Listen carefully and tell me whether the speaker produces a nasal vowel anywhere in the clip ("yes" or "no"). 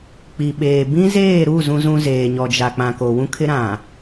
yes